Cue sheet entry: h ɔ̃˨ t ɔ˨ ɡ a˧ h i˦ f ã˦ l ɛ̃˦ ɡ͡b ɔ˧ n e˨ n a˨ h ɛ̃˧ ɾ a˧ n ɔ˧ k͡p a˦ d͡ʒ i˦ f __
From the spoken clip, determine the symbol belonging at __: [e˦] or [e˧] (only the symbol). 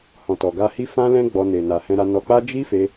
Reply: e˧